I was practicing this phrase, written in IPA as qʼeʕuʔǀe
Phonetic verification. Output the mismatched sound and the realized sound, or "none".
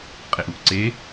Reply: ʕ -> ʔ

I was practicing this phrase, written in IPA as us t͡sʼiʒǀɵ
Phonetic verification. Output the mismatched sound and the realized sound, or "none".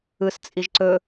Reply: u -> ɯ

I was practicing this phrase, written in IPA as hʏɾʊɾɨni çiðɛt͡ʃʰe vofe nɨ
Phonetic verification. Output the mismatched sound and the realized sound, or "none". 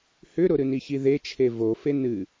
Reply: ɛ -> e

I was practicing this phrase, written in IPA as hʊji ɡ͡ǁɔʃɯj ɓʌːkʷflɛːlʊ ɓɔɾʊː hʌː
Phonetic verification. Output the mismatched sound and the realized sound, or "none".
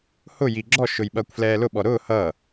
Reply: ɯ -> ʊ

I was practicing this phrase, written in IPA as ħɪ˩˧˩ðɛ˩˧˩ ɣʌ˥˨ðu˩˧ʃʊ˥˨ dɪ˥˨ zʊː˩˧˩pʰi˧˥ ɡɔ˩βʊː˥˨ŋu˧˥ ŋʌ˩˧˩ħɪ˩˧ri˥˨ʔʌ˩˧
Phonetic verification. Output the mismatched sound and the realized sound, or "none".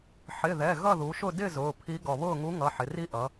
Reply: none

